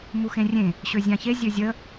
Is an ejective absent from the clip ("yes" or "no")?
yes